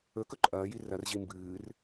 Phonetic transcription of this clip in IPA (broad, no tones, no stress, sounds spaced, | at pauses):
ɵ k ɵ ǃʼ ɐː j i r ɐ r ʑ i m b ɨː r